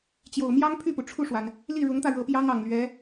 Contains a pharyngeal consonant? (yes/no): no